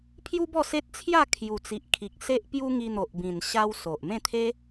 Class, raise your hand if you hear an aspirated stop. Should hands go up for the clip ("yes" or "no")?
yes